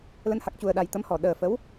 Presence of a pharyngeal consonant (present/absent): absent